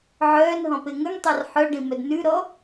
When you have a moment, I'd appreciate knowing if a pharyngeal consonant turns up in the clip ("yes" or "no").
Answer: yes